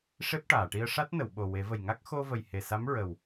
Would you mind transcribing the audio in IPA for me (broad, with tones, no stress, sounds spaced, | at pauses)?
ʂ e˦˥ p̚ ʈ aː˨˩˨ ʈ i˧ ə̯ ʂ a˦˥ t̚ n ə˨˩˨ w ɓ o˨˩ w e˨˩˦ v ə˨˩ j ŋ a˦˥ k̚ x o˧ v ə˨˩ j h e˨˩ s a˧˥ m ɹ ə˨˩ w